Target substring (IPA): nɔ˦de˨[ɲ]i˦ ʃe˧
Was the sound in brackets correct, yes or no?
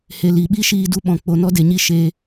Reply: yes